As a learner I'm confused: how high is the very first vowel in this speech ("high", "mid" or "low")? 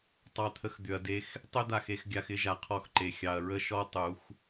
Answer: low